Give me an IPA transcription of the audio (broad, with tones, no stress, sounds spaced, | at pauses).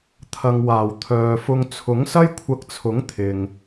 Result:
t̪ʰ ɐ˨ ŋ w aː˨˩ w t̪ʰ œː˨ f ʊ˧ ŋ t͡sʰ ʊ˨˥ ŋ s ɐ˥ j kʷʰ ɐ˧ k̚ t͡sʰ ʊ˨˥ ŋ t̪ʰ ɪ˨ ŋ